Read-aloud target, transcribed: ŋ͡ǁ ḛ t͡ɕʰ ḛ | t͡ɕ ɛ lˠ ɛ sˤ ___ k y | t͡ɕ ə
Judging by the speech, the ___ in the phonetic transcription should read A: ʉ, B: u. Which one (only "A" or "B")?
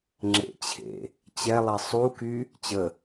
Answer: B